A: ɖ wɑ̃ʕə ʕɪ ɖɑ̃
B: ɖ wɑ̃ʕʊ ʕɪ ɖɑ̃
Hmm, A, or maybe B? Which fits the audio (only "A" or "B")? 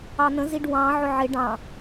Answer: B